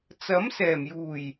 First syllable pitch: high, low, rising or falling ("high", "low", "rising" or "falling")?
rising